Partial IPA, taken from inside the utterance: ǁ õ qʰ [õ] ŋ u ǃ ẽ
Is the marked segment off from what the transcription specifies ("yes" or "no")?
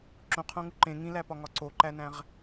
no